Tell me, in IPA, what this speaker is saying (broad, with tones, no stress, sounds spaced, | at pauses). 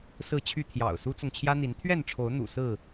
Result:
s ɹ̩˥˨ t͡ɕʰ y˥˨ t̪ʰ j ɑ̰˨˩ ʊ̯ s u˦ t͡s ʊ˨ ŋ t͡ɕʰ j ä˦ n̪ i˨˦ n t̪ʰ ɥ ɛ˥˨ n ʈ͡ʂʰ o˨˦ ʊ̯ n̪ ṵ˨˩ s ɹ̩˥˨